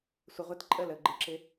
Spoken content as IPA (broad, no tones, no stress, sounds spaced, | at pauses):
sʷ ə ʁʷ ɪ t ǃʼ ə l ə ɡ͡ǃ ə ǁ ɪ